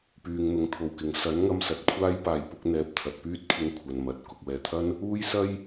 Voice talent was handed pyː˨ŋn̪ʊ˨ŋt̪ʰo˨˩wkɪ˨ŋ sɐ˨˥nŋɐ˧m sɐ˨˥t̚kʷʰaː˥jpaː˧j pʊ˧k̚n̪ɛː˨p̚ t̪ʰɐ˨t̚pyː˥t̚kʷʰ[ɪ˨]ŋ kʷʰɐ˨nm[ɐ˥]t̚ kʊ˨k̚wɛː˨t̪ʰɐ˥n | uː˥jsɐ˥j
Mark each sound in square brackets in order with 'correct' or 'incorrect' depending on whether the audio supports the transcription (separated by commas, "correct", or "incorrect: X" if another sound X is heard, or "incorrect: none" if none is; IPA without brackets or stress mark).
incorrect: ɪ˧, incorrect: ɐ˨